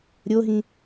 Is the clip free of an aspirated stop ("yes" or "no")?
yes